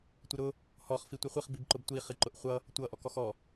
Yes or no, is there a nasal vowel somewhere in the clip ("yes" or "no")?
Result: no